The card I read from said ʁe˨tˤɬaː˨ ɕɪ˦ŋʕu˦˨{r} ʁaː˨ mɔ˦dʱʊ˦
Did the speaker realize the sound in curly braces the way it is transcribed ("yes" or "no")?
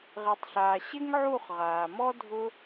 no